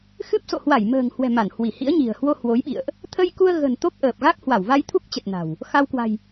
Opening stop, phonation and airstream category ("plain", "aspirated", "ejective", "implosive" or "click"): plain